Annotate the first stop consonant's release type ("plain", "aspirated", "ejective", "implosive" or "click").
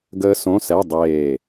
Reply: plain